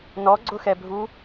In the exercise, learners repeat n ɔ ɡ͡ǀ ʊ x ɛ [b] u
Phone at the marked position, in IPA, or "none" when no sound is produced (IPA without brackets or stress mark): bʱ